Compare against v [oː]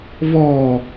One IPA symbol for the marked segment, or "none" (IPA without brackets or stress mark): ɔː